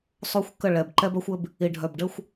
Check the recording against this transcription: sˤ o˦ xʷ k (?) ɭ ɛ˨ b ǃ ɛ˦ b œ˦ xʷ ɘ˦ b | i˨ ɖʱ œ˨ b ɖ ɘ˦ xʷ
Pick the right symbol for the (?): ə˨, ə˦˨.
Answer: ə˦˨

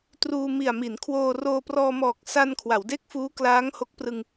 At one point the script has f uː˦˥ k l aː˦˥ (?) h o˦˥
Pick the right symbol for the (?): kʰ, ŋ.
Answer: ŋ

